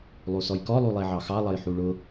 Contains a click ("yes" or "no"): no